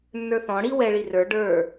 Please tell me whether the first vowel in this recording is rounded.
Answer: no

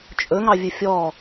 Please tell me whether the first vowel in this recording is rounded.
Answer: yes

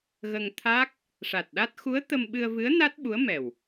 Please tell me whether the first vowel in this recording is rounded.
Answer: no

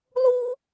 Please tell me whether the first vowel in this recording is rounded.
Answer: yes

